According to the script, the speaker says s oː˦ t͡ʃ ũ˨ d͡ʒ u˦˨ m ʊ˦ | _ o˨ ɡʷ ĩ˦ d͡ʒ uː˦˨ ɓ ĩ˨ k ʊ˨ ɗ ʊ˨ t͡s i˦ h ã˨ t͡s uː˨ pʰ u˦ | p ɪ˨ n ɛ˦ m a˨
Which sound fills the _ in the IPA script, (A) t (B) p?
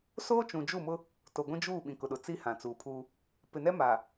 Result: A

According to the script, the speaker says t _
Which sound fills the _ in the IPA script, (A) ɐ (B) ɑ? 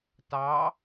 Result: B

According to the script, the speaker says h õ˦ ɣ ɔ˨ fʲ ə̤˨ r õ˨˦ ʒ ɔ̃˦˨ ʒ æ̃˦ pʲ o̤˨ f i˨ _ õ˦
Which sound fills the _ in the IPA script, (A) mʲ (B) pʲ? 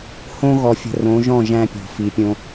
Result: B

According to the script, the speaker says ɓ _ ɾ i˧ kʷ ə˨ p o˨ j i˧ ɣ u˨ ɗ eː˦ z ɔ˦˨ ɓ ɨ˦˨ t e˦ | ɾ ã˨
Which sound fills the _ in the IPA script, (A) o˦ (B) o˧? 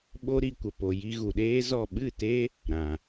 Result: A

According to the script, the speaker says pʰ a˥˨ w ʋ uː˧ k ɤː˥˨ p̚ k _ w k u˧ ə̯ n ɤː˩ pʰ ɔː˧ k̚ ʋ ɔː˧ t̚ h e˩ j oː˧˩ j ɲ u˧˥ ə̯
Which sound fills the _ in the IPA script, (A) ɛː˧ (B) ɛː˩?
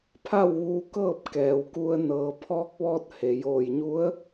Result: B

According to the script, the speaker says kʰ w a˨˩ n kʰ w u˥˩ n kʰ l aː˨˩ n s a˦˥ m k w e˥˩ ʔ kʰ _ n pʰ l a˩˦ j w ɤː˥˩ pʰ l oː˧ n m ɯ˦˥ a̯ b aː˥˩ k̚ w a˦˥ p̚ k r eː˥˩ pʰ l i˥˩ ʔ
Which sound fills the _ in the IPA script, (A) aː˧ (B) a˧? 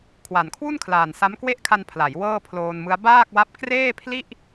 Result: B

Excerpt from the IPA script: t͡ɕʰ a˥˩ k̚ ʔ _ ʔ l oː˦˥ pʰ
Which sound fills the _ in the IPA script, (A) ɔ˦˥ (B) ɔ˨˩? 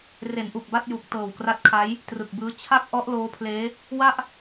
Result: A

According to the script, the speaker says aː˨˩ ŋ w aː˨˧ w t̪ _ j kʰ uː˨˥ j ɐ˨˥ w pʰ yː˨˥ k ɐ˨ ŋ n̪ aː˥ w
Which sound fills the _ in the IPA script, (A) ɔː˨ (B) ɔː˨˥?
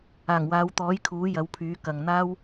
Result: B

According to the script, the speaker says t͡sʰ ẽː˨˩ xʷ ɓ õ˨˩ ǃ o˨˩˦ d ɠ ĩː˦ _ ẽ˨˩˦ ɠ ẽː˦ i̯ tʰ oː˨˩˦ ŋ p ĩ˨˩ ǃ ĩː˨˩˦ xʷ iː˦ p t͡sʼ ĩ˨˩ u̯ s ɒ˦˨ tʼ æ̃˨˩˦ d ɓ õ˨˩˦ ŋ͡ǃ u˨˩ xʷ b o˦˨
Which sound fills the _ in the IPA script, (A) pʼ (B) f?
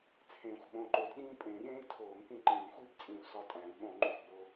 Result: A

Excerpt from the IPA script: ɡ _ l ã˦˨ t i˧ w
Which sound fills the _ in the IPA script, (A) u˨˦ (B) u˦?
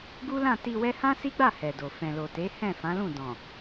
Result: B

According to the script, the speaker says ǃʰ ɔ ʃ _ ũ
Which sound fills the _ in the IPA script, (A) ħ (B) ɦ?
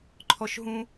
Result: B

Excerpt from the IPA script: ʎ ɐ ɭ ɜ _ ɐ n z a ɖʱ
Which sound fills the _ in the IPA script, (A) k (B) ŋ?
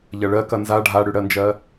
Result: A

